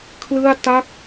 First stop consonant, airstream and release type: aspirated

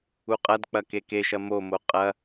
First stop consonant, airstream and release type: ejective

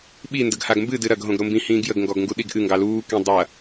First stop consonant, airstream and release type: implosive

